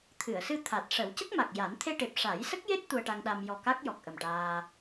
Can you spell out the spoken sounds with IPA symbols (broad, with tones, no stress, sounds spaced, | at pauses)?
t̪ʰ ɨ˨˩˨ ə̯ s ɨ˧ t̪ʰ a˨˩ t̚ ʂ ə˨˩˦ w c ə˦˥ k̚ m a˨˩ k̚ j a˨˩˦ n t̪ʰ e˧ ʈ e˨˩ p̚ ʂ a˨˩˦ j s ə˦˥ k̚ j e˦˥ t̚ t̪ u˧ ə̯ ʈ a˧ ŋ ɗ a˧ m j ɔ˨˩ k a˦˥ k̚ j ɔ˨˩ k̚ ʔ ə˨˩ m ʈ aː˧